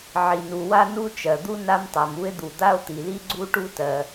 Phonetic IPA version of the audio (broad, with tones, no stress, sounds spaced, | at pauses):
ʕ i˩ n u˩ w a˥ n u˥ t͡ʃ ɜ˩ d̪ u˥ n a˥ m tˤ a˩ m u˥ e̯ d̪ u˩ d̪ a˥ o̯ t̪ i˩ l i˥ ɡ͡ǀ u˥ ʈ u˥ t ɜ˩